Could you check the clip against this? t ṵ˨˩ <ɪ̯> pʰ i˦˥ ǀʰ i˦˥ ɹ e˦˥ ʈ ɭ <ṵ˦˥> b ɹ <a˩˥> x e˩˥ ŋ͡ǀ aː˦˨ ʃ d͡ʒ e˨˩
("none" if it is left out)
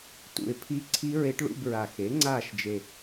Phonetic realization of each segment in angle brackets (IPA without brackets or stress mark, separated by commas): ɪ̯, ṵ˧˥˧, a˨˩